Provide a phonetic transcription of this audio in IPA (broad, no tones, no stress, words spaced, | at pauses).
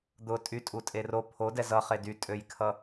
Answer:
d̪ʊ tʼytʼutʼe ro pʰodɛ zʌχe dytʼøjkʰʌ